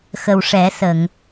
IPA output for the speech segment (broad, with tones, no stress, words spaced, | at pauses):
xə˨˩wʂɛ˨˩˦sə˨˩˨ŋ